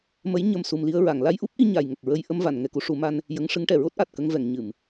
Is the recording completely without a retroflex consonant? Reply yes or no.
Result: no